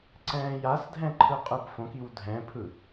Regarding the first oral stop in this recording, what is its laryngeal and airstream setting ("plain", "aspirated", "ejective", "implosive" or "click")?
click